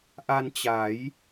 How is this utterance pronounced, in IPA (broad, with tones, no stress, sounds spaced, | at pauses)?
ʔ a˧ n t͡ɕ a˩˦ j